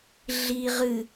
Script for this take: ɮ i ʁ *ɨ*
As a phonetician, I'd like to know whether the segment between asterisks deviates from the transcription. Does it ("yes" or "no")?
no